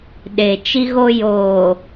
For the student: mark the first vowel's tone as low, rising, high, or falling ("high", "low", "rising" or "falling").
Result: low